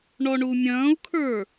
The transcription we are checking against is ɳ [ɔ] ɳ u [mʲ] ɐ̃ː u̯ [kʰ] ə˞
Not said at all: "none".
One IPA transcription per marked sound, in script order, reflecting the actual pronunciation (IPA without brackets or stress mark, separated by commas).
ɔ, mʲ, kʰ